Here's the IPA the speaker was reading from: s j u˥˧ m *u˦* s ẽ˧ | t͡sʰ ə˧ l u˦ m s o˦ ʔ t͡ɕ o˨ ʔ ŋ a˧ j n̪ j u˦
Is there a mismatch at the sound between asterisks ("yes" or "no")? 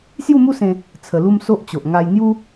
no